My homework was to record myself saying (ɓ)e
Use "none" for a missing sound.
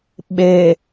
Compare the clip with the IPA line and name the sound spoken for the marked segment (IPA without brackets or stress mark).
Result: ɓ